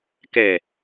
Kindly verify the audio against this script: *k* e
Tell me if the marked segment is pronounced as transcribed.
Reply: yes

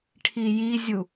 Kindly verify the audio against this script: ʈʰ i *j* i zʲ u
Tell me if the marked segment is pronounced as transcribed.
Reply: yes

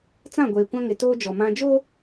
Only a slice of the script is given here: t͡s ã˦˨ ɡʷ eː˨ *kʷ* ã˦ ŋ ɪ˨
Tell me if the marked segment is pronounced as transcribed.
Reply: yes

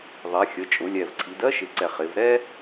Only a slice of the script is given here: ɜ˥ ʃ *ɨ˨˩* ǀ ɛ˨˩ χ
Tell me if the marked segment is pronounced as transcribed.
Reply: no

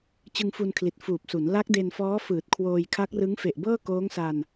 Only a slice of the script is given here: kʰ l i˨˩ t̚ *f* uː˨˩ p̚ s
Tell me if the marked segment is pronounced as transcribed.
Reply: yes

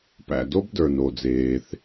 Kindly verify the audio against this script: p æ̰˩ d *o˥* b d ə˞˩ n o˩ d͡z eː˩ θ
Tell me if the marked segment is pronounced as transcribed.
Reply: yes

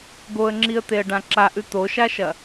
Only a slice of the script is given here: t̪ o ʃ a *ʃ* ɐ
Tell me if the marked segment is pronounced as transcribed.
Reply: yes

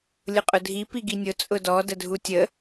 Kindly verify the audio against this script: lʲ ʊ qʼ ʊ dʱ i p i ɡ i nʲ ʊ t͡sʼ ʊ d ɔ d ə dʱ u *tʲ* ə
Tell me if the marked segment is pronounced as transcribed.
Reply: yes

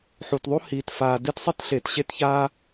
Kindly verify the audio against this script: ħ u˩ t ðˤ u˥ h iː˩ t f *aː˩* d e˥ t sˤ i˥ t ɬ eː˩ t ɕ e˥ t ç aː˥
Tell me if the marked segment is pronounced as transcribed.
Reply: yes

